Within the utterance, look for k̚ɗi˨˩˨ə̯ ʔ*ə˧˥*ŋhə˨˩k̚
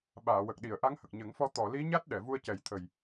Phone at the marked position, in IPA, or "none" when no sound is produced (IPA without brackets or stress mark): a˧˥